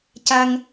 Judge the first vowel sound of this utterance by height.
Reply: low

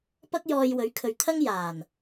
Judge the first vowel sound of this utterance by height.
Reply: low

